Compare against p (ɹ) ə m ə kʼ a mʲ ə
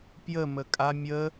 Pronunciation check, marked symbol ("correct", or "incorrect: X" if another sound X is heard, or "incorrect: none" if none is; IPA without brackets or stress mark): incorrect: j